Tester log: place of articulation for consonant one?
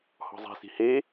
glottal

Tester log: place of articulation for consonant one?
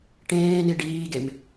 retroflex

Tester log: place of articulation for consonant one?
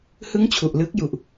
glottal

